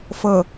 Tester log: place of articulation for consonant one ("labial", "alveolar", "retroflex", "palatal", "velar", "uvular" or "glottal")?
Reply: labial